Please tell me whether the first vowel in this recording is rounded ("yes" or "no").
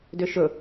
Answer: yes